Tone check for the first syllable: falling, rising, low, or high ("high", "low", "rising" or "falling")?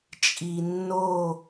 low